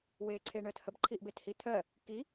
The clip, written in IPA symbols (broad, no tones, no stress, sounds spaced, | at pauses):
w eː ǀʰ e ɳ əː t h ə b ǃʰ i ʔ b e t h i t̪ʰ ɜ | k i